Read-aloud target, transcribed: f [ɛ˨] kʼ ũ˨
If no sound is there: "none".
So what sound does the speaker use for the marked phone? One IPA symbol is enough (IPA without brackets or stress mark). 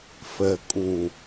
ɛ˨